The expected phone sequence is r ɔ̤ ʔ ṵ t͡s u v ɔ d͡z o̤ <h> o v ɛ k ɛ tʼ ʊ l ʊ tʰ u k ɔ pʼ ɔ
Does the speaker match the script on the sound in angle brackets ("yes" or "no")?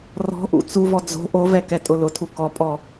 no